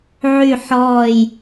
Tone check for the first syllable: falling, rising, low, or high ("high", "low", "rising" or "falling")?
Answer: falling